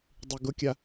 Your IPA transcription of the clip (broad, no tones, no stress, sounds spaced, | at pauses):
dˤ y ɡ ʊ kʲ a